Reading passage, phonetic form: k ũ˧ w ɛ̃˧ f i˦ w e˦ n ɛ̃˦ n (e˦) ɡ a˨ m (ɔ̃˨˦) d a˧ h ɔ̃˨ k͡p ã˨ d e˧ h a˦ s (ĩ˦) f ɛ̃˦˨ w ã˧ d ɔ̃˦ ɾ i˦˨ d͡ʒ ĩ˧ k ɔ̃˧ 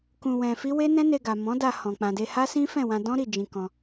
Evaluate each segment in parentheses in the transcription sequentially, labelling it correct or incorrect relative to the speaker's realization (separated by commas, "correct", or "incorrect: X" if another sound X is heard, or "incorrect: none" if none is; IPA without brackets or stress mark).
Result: incorrect: e˧, correct, correct